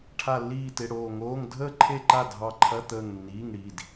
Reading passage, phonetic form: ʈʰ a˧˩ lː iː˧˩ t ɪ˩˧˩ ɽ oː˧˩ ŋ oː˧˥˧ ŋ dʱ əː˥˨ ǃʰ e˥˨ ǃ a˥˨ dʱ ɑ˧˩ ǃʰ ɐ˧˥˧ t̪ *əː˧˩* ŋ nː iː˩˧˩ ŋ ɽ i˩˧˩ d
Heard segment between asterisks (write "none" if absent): əː˧˩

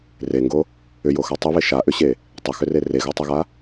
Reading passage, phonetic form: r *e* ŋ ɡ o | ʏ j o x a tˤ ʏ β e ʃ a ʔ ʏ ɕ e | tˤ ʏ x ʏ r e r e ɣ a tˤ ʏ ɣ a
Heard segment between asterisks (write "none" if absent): e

